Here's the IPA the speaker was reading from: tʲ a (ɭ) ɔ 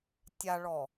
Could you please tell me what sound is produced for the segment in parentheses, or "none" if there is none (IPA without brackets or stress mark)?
ɭ